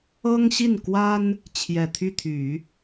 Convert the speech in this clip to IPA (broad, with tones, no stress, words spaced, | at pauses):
ɤ˥ŋɕi˥˩nkwa˥n | t͡ɕʰjɛ˨˩t̪ʰy˥˩t̪ʰy˨˩˦